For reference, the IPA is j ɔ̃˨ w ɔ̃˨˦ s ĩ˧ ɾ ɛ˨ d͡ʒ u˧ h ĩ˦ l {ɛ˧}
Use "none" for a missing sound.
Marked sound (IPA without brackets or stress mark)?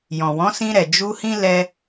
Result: ɛ˧